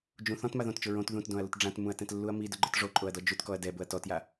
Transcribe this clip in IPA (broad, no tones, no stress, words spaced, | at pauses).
d͡ʒũ θɔ̃tma ðõtt͡ʃʊ ɹõt ðũtdõɐ̯lʊt ɖ͡ʐãtmũɐ̯tɛ̃tlːuɐ̯ midʊɡ͡ǃʊt ʐoǃʼoɐ̯dɔ d͡ʒutkɔɐ̯ dɛbʊɐ̯ tɔtja